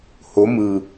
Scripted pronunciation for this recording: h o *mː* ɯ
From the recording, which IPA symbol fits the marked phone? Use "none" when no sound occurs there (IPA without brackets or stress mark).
m